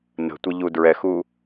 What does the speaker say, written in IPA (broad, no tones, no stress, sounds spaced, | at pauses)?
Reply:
n ə̤ tʷ ɛ ʎ u d ɹ ɛ x u